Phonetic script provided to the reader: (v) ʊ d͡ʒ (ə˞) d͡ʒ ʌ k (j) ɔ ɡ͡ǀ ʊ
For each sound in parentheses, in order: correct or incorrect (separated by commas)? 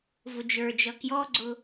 correct, correct, correct